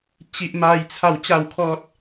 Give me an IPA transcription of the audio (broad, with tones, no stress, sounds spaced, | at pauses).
t͡ɕ i˦ ʔ m a˦ j t͡sʰ a˥˧ w t͡ɕ a˥˧ w kʰ ɔ˦ t̚